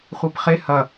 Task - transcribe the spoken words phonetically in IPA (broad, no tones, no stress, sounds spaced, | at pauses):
χʷ i p χ e h ɐ